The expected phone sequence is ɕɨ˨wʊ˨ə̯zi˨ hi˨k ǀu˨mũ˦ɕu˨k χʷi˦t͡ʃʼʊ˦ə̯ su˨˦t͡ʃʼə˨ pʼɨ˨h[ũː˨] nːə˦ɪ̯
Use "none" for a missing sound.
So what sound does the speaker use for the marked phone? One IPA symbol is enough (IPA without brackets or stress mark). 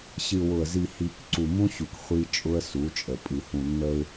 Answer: ũ˨